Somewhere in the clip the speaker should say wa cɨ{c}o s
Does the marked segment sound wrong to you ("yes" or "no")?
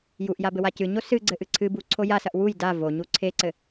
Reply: yes